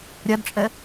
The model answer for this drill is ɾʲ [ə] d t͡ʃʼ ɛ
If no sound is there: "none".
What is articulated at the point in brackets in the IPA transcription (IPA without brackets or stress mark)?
a